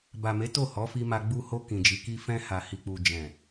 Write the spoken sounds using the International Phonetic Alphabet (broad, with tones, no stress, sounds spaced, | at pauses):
b a˨ m e˨˦ t o˦˨ h ɔ˨˦ f i˧ m a˧ ɡ͡b u˧ h o˧ k ĩ˨ d͡ʒ i˨˦ k i˦ f ɛ̃˧ h a˨ h i˨ k͡p u˨ d͡ʒ ɛ̃˨